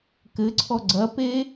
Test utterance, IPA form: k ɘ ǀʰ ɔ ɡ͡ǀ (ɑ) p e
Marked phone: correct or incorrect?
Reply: incorrect